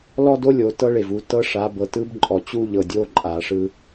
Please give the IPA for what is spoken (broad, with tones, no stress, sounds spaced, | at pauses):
l ɔ˦ d o˦ lʲ o˨ t ɤ˦ ɭ e˨ v u˨ t ɤ˦ ʂ a˨˦ b ɤ˨ t ɯ˦ b ǃʼ ɔ˨ t͡ɕ u˦ ʎ ɤ˨ dʲ o˦ ǃʼ a˨ ʂ ɯ˦